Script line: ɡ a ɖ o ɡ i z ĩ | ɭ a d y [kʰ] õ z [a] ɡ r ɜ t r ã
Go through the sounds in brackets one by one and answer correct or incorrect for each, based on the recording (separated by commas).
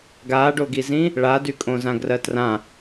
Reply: incorrect, incorrect